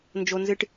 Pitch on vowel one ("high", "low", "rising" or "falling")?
high